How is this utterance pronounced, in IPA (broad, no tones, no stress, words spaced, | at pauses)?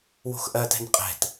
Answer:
wo̤xʔɜtɛ̤n qʼɛ̤t